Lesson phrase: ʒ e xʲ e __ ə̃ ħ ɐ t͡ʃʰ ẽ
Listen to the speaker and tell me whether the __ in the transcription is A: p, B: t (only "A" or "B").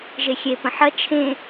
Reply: A